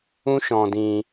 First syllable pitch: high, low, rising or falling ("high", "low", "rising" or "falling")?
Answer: high